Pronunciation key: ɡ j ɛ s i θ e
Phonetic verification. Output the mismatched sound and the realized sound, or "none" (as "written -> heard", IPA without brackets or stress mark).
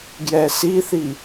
e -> i